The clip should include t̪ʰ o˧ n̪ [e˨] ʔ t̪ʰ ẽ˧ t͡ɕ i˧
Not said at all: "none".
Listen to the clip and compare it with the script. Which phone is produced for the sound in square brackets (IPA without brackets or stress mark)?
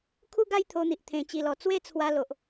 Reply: i˨